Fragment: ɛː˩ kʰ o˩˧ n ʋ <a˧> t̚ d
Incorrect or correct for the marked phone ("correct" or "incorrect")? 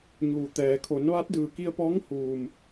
incorrect